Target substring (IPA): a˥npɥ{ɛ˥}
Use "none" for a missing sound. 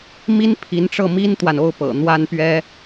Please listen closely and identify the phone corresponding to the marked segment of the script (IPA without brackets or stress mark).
ɛ˥